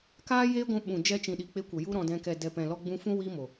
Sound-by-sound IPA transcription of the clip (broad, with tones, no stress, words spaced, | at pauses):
kaː˦jeː˦ɡʷũ˧ ɓũ˨d͡ʒɛ˧t͡ʃĩ˨ɗi˨ k͡pe˧kʷə˨ ju˦ɾɔ̃˧dɛ̃˧ kɛ˨dɛ˨pɛ̃˨ lɔ˧ɡ͡bũ˧fũ˦ wi˦mo˨